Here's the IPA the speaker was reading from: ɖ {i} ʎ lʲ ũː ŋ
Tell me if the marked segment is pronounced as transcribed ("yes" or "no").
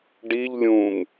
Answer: yes